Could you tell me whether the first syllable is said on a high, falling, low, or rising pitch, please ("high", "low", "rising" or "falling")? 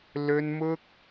high